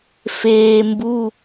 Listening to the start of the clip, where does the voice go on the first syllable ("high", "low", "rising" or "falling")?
low